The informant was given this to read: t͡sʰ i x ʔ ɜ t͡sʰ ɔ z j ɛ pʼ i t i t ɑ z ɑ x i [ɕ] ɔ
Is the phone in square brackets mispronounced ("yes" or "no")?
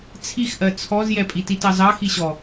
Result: no